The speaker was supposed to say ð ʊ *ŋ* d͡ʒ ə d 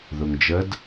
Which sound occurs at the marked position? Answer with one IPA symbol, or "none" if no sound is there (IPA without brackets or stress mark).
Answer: ŋ